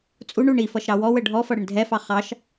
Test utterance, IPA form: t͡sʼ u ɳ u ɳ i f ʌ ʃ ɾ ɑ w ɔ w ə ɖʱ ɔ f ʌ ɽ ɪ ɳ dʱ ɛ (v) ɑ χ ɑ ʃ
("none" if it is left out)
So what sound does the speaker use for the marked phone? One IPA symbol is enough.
f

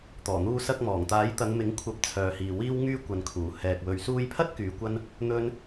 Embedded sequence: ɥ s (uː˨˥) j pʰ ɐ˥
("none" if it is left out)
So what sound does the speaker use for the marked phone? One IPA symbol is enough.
uː˧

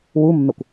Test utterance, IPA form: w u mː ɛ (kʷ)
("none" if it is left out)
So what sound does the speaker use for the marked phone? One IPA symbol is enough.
kʷ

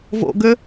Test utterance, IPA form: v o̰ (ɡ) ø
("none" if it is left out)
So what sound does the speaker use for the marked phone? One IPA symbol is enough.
ɡ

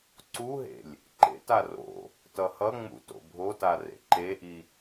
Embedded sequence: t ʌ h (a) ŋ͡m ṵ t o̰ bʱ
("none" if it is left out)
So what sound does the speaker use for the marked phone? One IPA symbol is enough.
ʌ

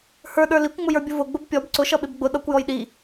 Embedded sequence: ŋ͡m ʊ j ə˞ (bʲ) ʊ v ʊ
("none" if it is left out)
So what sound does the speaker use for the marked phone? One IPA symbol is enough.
bʲ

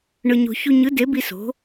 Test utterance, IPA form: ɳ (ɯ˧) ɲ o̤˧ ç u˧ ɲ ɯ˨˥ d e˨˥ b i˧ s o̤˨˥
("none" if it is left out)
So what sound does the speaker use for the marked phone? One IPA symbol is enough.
ɯ˧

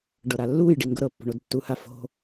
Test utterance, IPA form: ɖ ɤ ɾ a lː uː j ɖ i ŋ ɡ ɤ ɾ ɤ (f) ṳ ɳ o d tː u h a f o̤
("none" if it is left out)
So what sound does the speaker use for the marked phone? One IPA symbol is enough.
pː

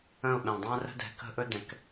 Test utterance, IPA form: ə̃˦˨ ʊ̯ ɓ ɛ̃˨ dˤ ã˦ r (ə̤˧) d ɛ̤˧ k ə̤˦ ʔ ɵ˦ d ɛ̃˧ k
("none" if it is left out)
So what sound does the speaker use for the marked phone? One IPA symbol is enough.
ə̤˦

